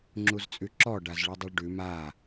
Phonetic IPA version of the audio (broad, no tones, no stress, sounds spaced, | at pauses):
ŋ͡ǁ u z t͡sʼ ʉ ǁ ɔ ɖ a z ɭ ʉ dˤ u ɭ ɖ ʉ m a